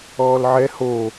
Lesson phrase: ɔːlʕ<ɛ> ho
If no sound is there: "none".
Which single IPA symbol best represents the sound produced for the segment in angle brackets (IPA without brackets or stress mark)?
ɛ